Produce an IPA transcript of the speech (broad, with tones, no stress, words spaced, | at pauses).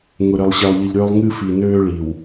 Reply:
ŋʊ˨ɾɘ˨lˠ ɕɛ˨lˠʎɨ˨ʎɾøː˦lˠ ŋɨ˦ fi˨nøː˦ɭi˨w